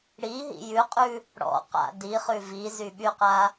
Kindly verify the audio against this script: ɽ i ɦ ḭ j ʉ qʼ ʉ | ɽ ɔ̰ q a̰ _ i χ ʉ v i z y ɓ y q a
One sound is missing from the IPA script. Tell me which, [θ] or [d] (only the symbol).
d